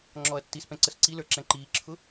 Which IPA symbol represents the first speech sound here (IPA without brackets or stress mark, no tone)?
ŋ͡ǁ